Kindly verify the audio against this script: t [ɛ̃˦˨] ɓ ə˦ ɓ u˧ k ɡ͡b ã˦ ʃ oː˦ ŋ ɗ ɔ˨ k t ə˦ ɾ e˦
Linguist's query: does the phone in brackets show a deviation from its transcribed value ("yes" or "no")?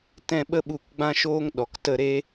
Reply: no